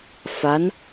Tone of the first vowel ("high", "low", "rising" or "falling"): rising